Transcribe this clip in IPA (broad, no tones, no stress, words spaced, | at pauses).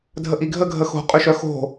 dʱəʔiɡʱə ɡʱəxo̤ qʼʏʃœxo̤